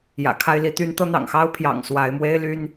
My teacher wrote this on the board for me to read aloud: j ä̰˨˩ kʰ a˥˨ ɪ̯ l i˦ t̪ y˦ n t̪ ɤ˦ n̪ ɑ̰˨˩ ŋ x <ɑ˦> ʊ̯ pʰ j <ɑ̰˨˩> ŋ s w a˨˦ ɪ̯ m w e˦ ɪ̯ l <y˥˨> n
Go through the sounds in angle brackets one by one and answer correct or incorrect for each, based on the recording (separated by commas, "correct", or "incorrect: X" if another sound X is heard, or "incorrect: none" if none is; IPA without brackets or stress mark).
correct, correct, incorrect: y˦